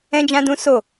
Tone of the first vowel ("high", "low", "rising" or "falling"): high